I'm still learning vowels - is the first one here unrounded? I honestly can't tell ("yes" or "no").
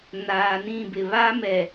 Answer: yes